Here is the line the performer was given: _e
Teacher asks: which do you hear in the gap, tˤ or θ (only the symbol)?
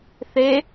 θ